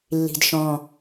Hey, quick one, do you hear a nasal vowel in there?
yes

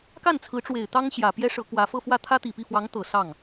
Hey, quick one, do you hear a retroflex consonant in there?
yes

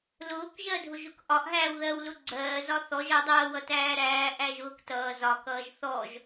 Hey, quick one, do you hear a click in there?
yes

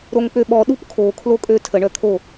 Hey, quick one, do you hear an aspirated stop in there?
yes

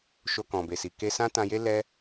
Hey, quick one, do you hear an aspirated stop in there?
no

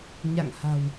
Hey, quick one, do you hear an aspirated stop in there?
no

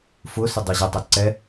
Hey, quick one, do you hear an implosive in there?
no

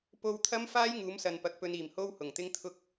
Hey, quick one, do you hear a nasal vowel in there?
no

